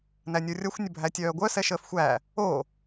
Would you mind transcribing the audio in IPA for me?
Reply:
n æ nʲ o rʲ ʌ xʷ nʲ ə bʱ æ tʲ œː ɡʷ œ s ɛ ʃ əː f xʷ æː | oː

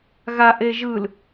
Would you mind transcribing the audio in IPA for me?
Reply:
ɣ a ʔ e ʒ ɯ l

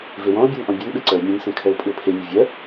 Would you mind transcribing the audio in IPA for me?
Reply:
v e w ɔ̃ o̯ bʲ ɛ n ʔ ɔ̃ bʲ ɔ n ɓ e ǀ ɜ o̯ mʲ ẽ n s ẽ kʰ ɜ o̯ pʼ ʉ o̯ pʰ e mʲ ɛ vʲ ɜ

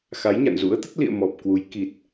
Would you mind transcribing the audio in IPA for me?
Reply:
x a˨˦ j ɲ a̰˧˨ n z ṵ˧˥ ə̯ t̪ ə˦˥ t̚ l ḭ˧˨ ə̯ m ɔ˨˩ p̚ k w u˨˦ j k i˨˩ t̚

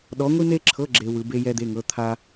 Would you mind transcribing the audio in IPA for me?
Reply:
ɗ ɔ˧˥ ŋʷ i˥ n̪ e˥ ǁʰ ɤ˧˥˧ ɡ͡ǁ e˥ w ɯ˧˥ b e˥ j ɛ˥ d̪ e˧˥˧ ŋ ɤ˧˥˧ t̪ʰ a˥

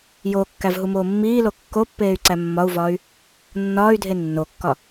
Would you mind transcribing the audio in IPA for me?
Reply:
j oː kː æ v ɦ u m oː mː iː l o kː o pː eː y̯ ǀ æ mː ɒ u̯ v ɒː y̯ | nː ɒː y̯ dʱ e nː o kː ɒ

